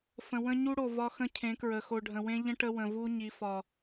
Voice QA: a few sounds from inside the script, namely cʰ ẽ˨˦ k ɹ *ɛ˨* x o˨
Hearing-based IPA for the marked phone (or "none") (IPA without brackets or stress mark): ə˨